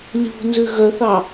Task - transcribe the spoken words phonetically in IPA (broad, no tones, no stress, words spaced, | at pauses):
lʲṳ nzʉɣœθɑ